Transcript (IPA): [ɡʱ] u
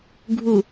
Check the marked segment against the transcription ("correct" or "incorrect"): correct